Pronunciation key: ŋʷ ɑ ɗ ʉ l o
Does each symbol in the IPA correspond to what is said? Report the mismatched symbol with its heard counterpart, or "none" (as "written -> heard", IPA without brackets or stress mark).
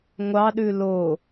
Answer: none